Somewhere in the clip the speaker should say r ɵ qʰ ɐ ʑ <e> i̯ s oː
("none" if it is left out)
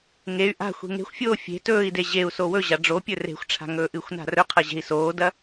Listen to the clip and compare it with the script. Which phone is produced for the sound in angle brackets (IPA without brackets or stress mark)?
e̤